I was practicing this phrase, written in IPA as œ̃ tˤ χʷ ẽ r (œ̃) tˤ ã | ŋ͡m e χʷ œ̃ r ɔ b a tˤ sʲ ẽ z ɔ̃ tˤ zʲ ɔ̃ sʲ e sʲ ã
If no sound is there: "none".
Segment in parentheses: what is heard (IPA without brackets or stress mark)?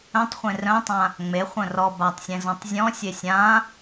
œ̃